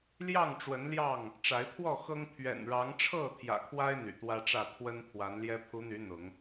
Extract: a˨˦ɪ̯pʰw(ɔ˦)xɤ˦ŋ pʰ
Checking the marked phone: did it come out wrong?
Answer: yes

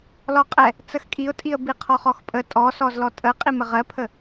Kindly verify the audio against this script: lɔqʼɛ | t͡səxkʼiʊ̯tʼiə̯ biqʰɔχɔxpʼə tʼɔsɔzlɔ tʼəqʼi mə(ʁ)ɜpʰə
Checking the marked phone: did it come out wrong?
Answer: no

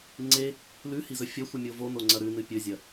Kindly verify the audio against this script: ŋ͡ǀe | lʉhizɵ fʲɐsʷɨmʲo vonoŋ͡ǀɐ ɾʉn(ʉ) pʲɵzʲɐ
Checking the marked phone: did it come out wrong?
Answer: yes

